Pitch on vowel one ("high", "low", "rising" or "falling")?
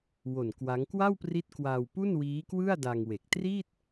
low